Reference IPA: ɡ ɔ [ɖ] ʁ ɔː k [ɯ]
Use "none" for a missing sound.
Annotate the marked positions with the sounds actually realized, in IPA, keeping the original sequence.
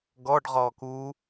ɖ, u

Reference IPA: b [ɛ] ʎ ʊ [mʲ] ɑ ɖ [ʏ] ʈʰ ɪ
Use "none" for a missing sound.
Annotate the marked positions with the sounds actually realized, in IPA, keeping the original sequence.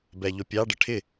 ɛ, pʲ, ə

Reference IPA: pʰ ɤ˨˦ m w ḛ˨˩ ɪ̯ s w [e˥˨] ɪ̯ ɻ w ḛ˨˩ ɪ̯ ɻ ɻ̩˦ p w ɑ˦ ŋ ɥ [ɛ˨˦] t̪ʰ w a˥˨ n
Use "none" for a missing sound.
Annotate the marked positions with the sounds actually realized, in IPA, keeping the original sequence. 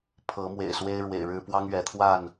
e˦, ɛ˨˦

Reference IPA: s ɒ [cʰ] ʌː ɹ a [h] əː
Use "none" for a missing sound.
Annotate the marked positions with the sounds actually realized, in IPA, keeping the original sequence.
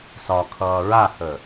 kʰ, h

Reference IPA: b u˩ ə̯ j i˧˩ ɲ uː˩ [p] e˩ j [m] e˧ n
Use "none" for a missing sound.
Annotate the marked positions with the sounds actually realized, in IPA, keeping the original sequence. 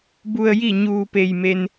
p, m

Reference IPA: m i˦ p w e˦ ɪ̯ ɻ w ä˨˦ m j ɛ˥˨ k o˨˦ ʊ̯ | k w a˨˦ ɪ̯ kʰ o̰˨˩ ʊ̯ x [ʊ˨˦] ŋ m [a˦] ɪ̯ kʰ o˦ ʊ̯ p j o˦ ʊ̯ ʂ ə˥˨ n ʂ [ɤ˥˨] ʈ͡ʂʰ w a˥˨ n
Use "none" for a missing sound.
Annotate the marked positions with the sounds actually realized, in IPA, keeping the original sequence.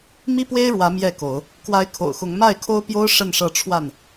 ʊ˨˦, a˥˨, ɤ˥˨

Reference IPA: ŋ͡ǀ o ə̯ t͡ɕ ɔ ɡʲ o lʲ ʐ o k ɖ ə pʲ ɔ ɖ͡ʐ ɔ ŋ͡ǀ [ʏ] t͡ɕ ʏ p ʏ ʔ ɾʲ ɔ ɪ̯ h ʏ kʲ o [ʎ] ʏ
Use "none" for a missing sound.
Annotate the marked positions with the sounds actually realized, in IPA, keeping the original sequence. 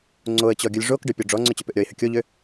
ʏ, ʎ

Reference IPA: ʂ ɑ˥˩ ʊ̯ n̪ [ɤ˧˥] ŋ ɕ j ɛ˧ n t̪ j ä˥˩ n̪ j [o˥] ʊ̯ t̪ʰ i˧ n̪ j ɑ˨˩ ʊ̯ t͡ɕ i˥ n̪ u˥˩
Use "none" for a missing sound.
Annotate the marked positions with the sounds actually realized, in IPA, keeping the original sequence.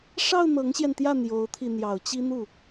ɤ˧˥, o˧˥

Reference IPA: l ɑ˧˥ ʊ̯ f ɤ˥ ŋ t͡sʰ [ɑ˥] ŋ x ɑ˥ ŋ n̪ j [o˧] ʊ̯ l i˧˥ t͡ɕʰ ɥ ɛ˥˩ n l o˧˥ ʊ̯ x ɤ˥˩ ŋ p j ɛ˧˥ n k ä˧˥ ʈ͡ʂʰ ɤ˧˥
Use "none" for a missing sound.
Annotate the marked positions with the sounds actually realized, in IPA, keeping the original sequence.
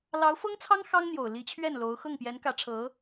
ɑ˥, o˨˩

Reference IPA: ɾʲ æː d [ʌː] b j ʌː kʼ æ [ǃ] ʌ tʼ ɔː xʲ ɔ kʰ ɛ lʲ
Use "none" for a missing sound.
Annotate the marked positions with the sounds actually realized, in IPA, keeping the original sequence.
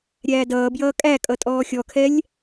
ʌː, kʼ

